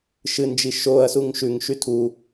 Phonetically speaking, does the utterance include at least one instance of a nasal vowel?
no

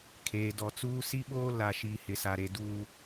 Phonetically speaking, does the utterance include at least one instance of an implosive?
yes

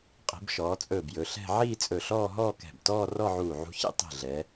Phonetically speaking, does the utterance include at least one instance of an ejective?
yes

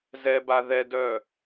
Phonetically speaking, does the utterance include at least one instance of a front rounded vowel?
yes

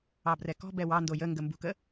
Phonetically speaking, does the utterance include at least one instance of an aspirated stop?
no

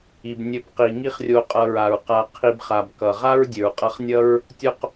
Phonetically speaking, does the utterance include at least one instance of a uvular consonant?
yes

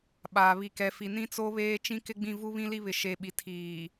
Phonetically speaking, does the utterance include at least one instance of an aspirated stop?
yes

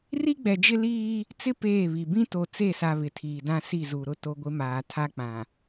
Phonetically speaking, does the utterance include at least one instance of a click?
no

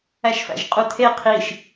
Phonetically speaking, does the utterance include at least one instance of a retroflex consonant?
no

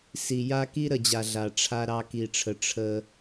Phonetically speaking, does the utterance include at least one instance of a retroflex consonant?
yes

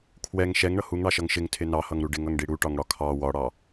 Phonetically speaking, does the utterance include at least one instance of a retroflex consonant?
yes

